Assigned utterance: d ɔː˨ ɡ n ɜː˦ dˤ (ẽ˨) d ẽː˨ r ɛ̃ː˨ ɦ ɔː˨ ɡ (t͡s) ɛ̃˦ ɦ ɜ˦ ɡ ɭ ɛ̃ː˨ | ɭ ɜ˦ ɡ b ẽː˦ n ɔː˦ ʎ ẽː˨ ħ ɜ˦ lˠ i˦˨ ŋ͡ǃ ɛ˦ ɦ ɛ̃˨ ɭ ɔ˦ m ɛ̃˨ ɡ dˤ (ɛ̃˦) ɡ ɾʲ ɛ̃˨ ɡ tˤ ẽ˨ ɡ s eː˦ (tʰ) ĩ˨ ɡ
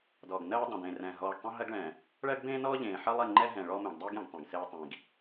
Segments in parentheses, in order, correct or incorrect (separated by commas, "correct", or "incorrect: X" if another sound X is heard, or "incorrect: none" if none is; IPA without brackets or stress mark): correct, incorrect: tˤ, incorrect: ɛ˦, incorrect: tˤ